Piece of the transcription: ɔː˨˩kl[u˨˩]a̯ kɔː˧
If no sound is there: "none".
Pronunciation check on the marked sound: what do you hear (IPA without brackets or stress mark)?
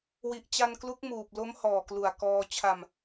u˨˩